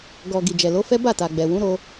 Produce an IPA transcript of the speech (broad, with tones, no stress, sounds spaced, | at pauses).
ɡ ɔ˨ ɡ i˨ d͡ʒ ɛ˨ l o˨˦ f ɛ˦ b a˦˨ t a˨ ɡ͡b ɛ˨ w ũ˨˦ ɾ o˧